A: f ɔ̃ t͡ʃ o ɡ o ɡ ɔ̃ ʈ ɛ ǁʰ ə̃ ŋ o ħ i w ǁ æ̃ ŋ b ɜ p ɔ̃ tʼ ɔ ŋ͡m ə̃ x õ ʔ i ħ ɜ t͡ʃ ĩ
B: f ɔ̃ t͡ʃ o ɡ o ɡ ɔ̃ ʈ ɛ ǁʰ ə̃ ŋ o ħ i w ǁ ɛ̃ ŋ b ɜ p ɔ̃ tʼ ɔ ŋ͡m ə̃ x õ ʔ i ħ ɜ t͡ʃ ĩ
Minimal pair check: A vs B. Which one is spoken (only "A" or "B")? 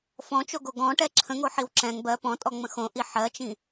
B